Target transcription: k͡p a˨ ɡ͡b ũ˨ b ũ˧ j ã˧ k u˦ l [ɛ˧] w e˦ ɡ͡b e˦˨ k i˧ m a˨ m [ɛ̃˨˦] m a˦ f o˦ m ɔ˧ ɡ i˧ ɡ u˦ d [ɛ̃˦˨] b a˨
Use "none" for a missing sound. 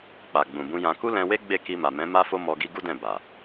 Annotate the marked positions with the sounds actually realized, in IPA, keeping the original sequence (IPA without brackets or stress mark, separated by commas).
ɛ̃˧, ɛ̃˨˦, ɛ̃˦˨